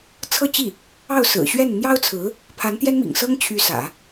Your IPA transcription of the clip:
t͡sʰ ɤ˥˧ t͡ɕ i˥˩ | ɑ˥˩ ʊ̯ s ɹ̩˨˩ ɕ ɥ ɛ˥˩ n n̪ j ɑ˥ ʊ̯ t͡sʰ ɹ̩˧˥ | pʰ a˧˥ n t̪ j ɛ˥ n m ḭ˨˩ ŋ s ɤ˥ ŋ t͡ɕʰ y˧˥ s ä̰˨˩˦

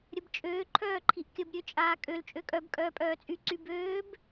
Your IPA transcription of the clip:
ɾʲ ə b t͡ʃʼ øː ǃʰ œː ǃʰ i ʔ kʲ ə b ɾʲ ø t͡ʃʼ aː kʼ ø l t͡ʃʼ ø kʼ œ b kʼ œː pʼ œː t͡sʼ y ǀ y b øː b

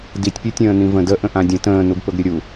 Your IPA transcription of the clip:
d i tʲ pʲ ɘ tʲ ə̃ː n ĩ v ə̃ d ə ʔ ə̃ ʔ ã dʲ ə̃ t ə̃ː n u ɡ p ɵ ɡ ɾʲ ɵ ɾʲ u

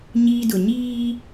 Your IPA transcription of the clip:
ɲ iː˦ d ʊ˨ ɲ iː˦

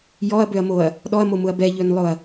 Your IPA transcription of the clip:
j ɔ ɐ̯ b ø ɐ̯ m o ɐ̯ | ɗ ɔ ɐ̯ m o m ʊ ɐ̯ b ɛ ʎ ø n lˠ ʊ ɐ̯

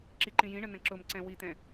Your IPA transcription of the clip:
ǁ i ǃ ĩ j ĩ ɳ ə n ə̃ ǁ ʊ m ǀ ɛ̃ w i t̪ ɛ̃

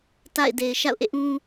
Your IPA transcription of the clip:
t a̰˦˨ ɪ̯ d e˨ ɪ̯ ʃ a̰˦˨ ʊ̯ ʔ ḛ˦˨ ʔ ũ˦

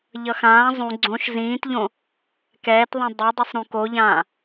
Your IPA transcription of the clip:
ʎ ʌ x ãː zˤ ũ ɡ͡ǀ õ ʃ z ĩː t ʎ õ | k ɛː t ðˤ ĩ dˤ ʌ dˤ ɯ sˤ ɾ ũ k o ʎ ãː

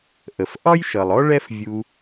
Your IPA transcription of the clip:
ʔ ə˩ f ʔ ɒ˥ j ʃ ʌ˩ lˠ ɔ˥ ɭ ɛ˦ f vʲ u˨

